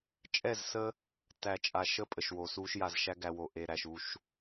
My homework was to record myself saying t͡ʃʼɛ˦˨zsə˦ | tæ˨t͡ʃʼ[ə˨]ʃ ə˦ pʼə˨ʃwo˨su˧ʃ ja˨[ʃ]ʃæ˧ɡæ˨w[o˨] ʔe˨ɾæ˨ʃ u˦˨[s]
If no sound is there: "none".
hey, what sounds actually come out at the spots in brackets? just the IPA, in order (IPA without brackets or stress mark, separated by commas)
a˨, z, o˨, ʃ